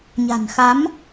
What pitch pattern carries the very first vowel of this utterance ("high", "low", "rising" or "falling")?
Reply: low